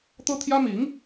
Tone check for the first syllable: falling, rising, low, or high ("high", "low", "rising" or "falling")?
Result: high